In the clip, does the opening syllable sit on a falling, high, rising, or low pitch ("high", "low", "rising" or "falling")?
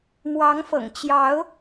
rising